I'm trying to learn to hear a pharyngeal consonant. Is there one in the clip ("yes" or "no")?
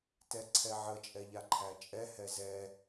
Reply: yes